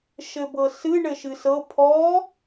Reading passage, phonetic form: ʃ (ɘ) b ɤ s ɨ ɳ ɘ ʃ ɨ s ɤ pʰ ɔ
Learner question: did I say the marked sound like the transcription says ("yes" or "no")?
yes